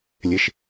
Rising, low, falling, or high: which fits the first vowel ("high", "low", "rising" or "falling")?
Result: low